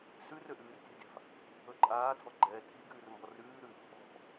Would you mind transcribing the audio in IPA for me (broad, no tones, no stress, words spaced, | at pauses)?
sʉ røʔʉːrtʲɛ̤dʲa̤f | ɵǃʼaːtʰɔ ɡ͡ǃɛːtʰi ɡʉːrmbɔrʉː ɾʉf | ɔ̤